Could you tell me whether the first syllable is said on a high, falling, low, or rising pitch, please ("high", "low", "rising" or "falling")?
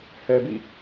low